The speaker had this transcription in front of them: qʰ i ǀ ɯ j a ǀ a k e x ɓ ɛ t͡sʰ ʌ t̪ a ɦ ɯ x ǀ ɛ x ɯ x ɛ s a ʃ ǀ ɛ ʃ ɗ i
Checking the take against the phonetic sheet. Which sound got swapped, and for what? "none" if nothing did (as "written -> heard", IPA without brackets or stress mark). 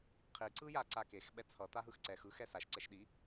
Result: none